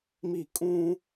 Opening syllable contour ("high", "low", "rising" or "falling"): falling